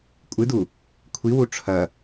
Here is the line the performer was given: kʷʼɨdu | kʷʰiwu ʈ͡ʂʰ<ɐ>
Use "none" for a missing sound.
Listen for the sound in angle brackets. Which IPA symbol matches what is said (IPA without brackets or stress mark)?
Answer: ɐ